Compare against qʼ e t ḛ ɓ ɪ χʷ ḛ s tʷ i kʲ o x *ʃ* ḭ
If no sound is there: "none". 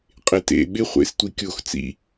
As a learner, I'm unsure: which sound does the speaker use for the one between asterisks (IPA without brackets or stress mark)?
t͡s